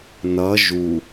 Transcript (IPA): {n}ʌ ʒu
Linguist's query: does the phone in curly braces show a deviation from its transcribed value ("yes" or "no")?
no